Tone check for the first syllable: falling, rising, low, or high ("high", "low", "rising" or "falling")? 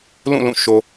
falling